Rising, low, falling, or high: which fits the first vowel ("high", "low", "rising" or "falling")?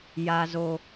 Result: high